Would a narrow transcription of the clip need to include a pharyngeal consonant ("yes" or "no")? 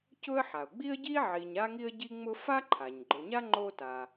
yes